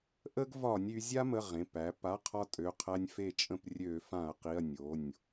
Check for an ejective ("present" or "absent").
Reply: present